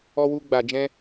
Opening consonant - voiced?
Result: yes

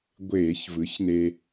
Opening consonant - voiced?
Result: yes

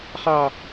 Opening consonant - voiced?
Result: no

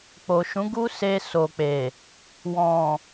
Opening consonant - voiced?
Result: no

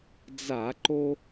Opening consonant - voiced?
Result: yes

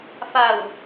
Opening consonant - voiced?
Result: no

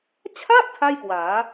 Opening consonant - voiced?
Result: no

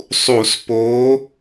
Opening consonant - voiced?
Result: no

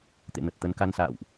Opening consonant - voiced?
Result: no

